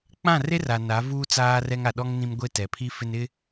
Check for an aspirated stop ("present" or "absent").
present